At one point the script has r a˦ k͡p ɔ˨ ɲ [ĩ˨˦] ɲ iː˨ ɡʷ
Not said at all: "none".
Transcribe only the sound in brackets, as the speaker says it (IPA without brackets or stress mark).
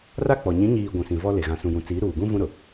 ĩ˨˦